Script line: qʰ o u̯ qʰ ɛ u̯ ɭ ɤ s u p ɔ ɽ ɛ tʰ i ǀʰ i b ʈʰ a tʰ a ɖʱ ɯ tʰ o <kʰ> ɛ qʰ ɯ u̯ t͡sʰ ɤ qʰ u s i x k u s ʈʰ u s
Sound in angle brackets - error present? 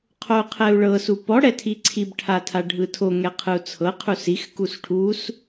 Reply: yes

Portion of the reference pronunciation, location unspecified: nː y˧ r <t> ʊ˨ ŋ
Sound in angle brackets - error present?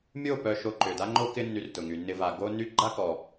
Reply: no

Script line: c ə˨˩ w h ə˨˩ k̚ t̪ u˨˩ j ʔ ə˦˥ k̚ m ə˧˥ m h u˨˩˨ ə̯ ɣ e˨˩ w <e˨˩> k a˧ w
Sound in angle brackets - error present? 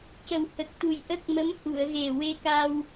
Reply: yes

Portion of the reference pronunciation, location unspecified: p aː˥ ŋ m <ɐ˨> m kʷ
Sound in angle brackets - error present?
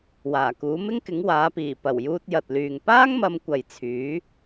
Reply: yes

